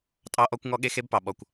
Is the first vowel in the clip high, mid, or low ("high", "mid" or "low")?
low